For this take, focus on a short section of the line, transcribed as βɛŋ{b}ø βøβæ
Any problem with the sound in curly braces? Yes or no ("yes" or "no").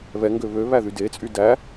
yes